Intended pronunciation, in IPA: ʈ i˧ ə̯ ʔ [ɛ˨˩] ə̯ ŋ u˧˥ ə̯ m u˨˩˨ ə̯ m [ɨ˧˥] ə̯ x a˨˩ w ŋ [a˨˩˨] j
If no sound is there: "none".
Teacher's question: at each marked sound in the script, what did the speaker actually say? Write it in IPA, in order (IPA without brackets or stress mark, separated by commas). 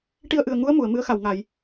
ɨ˨˩, ɨ˧˥, a˨˩˨